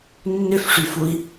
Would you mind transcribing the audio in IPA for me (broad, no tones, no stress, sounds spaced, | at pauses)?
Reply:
nː ʏ f ʂ y f u i̯